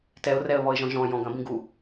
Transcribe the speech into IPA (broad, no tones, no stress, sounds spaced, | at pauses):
t ɛ ʊ̯ r ɛ ə̯ β ɔ ɪ̯ ʒ ɔ̃ ʒ ɔ̃ j ɔ̃ ɡ ɐ̃ b ĩ ɡ u